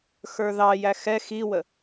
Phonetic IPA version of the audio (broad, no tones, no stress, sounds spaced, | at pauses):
x ə˞ ð ɑ j æ x ɛ x i w ə